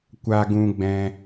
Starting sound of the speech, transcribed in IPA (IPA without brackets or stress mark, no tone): kʷ